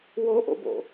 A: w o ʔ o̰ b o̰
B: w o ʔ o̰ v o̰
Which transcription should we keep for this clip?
A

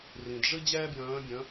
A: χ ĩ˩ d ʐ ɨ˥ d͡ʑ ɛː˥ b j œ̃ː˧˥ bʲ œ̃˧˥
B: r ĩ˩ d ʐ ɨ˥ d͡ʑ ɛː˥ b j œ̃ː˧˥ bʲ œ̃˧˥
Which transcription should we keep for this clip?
B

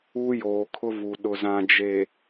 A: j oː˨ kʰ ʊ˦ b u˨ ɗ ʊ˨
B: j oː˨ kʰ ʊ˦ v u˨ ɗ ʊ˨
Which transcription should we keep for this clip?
B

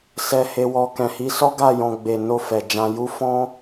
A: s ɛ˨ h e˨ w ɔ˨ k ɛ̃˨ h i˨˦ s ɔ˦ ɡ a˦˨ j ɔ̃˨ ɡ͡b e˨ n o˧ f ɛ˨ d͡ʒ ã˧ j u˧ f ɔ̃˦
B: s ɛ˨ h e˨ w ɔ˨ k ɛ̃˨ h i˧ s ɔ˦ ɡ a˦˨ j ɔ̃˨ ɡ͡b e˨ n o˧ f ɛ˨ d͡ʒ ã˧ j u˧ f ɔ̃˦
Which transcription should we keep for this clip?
A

